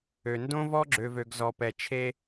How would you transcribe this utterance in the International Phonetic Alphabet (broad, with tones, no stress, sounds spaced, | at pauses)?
ø˨ n d õ˦ v ɔ˦ ɡ͡ǁ ø˨ v ø˨ ɡ z ɔ˨ p ɛ˨ t͡ʃʰ e˦